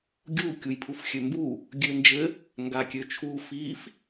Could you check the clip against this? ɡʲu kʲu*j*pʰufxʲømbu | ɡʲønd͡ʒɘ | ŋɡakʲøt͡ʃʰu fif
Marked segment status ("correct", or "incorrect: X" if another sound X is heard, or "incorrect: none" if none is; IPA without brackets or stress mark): correct